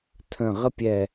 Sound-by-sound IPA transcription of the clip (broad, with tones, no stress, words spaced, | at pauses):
tʰə̃˧˩ ʁə˥pʲɛ˧˩